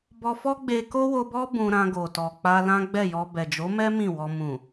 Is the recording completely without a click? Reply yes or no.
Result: yes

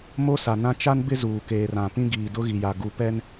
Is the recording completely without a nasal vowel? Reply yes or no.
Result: no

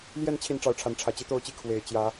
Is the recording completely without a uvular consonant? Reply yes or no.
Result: yes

